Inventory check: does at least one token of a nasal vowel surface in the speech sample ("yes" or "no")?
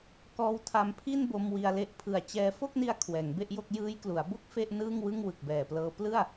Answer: no